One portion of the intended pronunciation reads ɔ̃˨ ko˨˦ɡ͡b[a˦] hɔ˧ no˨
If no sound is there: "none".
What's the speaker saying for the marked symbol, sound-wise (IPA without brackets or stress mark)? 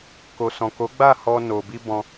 a˦˨